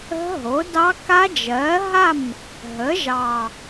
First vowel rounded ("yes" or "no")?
no